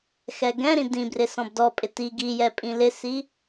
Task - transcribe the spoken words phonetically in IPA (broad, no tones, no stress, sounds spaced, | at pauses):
x ɛ ɡ ɛ̃ ɾ ĩ d ĩ b r ɪ s ɔ̃ b d ɔ pʼ ɪ t i ɡ i j ɛ pʼ ĩ l ɪ s i